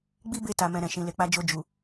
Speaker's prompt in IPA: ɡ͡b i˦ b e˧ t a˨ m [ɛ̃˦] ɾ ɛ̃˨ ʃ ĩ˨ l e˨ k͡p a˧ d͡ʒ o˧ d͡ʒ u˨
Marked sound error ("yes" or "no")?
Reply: yes